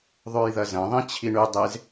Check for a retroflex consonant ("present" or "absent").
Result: present